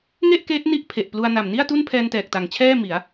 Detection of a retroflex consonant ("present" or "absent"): absent